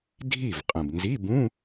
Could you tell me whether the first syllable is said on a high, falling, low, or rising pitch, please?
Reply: falling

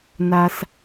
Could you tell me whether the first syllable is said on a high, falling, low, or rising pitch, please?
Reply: low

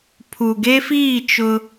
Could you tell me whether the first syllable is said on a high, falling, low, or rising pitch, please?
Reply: low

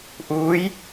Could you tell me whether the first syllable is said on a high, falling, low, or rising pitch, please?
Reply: rising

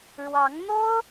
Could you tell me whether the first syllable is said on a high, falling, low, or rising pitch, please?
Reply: rising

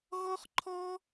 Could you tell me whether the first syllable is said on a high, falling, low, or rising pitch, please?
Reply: high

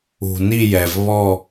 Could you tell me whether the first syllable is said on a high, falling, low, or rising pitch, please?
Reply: low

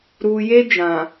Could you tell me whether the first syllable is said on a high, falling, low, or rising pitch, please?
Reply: low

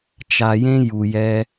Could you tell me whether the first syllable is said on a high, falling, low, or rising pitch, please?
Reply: low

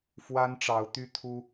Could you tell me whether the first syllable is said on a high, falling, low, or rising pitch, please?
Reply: high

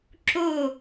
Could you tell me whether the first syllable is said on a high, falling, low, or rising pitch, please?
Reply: falling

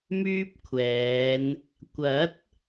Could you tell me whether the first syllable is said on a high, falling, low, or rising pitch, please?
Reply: high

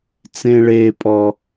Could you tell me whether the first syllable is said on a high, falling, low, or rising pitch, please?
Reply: high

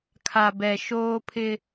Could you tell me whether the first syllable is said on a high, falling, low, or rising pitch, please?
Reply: low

